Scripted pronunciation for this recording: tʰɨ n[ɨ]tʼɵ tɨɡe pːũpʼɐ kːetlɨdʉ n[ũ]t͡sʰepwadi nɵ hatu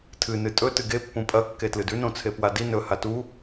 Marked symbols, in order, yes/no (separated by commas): yes, no